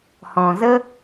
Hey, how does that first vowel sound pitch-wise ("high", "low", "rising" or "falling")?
low